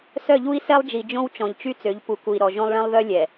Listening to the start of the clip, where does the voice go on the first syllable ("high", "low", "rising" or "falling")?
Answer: falling